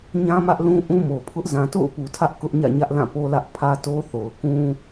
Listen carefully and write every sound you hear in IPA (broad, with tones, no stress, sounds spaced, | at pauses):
ɲ ã˦ m ä˦ ʔ l ũ˦ ʔ ũ˦ m o˨ pʰ ʊ˦ ʔ z ã˨ t o̰˦˨ ʊ̯ p u˨ tʰ ä˦ ʔ k ʊ˦ ʔ ɲ ä̰˦˨ ɲ ä˦ ʔ l ã˦˨ p o˦ l ä˦ ʔ pʰ ä˦ t o˦ θ o˨ ʊ̯ k ũ˦